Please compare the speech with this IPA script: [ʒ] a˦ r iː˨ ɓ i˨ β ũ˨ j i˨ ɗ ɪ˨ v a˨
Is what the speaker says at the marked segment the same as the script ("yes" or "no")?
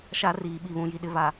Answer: no